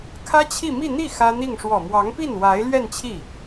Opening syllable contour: high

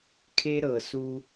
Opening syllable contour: high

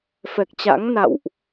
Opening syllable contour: low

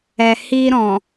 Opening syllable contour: low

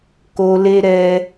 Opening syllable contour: low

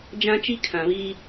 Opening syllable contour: high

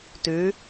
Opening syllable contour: rising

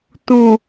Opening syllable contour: low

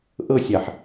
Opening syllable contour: falling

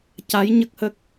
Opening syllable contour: rising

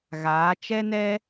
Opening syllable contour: rising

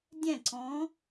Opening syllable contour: falling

